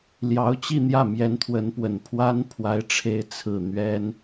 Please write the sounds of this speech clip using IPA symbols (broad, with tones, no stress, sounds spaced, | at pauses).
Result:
l j ɑ˧˥ ʊ̯ t͡ɕ i˥˧ n̪ j ä˥˩ m j ɛ˧˥ n t̪ʰ w ə˧˥ n p w ə˨˩ n pʰ w a˥ n pʰ w a˧˥ ɪ̯ ʈ͡ʂʰ e˧˥ ɪ̯ t͡sʰ ɹ̩˨˩ n̪ ɥ ɛ˥ n